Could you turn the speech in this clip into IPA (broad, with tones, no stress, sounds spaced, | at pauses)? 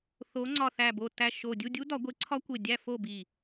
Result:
θ o˨˥ ŋ͡ǀ ɒ˧˩ θ æ˧˩ b o˧˩ t æ˧˩ ʃ o˧˩ dʲ u˥˨ dʲ u˦˥ d ɒ˨˩˦ ɡʷ e˨˥ ǀʰ ɒ˦˥ kʷ e˧˩ dʲ æ˥˨ f o˥˨ b i˧˩